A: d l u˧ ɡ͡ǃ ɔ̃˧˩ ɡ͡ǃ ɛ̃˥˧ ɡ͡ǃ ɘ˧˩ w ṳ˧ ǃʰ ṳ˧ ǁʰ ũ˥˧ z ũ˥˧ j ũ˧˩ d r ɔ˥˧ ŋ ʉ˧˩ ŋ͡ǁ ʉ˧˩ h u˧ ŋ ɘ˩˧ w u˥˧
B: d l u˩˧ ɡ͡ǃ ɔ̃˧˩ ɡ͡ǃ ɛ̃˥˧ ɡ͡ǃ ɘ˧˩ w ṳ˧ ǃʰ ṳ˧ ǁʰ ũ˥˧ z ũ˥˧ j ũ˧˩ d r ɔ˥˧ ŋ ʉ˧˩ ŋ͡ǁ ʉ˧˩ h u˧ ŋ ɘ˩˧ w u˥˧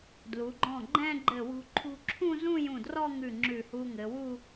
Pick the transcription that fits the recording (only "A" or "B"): B